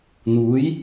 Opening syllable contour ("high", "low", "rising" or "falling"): rising